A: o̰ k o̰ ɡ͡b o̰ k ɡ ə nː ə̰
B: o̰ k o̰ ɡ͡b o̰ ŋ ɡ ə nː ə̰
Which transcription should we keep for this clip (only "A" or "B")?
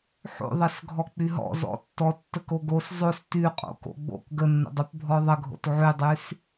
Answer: A